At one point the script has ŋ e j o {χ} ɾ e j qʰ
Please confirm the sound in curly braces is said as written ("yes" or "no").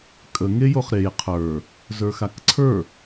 yes